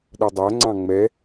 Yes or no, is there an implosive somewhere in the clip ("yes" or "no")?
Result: yes